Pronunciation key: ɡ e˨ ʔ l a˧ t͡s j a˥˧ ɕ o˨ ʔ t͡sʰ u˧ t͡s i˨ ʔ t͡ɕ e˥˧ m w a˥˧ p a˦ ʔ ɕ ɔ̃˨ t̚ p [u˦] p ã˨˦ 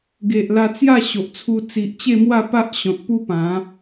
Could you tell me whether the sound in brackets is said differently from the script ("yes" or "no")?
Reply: no